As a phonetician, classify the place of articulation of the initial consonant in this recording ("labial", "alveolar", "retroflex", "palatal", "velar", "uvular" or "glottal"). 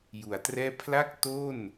palatal